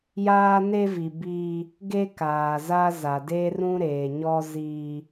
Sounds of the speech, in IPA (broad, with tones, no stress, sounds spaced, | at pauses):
j aː˦ n e˦ v i˨ b iː˦ | ɡ e˦ k aː˨ z a˦ z a˨ d e˦ r ũ˦ ɾ eː˨ ɲ ɔ˦ z iː˦